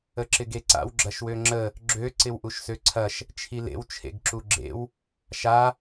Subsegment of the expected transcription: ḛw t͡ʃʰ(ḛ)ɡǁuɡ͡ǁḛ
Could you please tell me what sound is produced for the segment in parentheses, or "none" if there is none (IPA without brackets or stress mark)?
ḛ